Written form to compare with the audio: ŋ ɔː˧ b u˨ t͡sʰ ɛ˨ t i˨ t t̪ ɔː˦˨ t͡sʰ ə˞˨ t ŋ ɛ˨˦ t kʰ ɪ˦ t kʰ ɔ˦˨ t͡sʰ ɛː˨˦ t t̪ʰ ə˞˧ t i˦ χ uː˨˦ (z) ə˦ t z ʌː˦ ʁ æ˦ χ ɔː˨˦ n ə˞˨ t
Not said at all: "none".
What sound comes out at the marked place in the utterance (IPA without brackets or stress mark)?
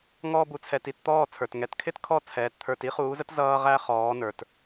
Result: z